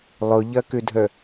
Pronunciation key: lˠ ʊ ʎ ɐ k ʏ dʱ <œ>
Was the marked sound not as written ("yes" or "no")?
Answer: no